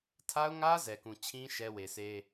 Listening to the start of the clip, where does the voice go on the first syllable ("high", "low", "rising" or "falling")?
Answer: high